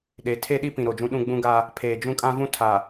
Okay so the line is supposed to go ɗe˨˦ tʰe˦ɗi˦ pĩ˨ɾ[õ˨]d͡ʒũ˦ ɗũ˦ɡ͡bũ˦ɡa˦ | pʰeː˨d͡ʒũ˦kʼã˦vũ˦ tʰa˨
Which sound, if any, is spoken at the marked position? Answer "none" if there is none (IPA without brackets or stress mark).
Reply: o˨